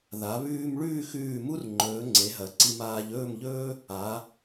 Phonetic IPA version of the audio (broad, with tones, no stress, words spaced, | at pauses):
ða˩˧ βʉː˧m ɭʉː˥˧xʉː˧˩mu˥rŋ͡ǃɵː˩˧ ŋ͡ǀe˩˧ɦɐ˩˧ǀi˧m aː˧ʎɵː˥˧mʎɵː˥ | a˩˧